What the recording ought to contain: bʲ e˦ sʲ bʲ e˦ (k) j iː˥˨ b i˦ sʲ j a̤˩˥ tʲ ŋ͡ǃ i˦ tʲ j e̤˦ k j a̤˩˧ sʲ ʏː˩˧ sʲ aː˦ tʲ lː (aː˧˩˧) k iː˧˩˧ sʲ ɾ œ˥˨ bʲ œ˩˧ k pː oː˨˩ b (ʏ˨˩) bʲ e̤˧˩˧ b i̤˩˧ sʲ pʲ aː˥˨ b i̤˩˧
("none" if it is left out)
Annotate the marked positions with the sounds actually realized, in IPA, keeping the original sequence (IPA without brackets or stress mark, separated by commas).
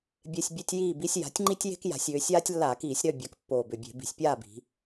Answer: tʲ, aː˧˩˧, ʏ˨˩